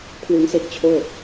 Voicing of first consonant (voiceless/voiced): voiceless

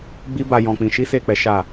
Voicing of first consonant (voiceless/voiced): voiced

